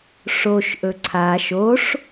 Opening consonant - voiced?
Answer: no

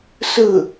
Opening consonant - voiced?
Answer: no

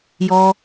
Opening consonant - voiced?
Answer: yes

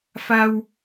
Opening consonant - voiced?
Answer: no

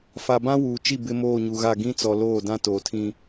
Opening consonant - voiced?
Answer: no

